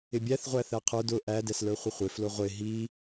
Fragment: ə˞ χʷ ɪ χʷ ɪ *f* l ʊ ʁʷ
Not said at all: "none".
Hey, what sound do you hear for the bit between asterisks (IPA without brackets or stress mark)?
f